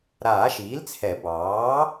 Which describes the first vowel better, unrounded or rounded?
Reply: unrounded